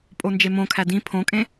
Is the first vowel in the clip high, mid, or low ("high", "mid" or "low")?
mid